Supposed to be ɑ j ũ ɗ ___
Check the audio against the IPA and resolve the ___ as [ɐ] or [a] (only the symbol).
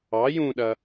ɐ